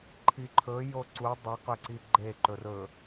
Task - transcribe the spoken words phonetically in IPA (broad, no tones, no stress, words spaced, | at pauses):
ǃʰiǃʰɵjo ǀu dˤiqɵ ǀiɡ͡ǃe ǃɵrɵ